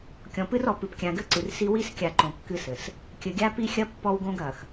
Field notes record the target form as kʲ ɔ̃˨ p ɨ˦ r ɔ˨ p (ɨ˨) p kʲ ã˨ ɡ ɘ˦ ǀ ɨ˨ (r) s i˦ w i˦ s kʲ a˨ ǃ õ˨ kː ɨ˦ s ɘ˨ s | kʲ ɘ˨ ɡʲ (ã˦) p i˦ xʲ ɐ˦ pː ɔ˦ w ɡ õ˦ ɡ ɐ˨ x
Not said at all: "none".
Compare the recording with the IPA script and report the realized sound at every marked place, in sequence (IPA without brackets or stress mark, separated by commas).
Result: ɨ˨, r, a˦